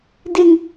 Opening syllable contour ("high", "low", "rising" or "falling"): high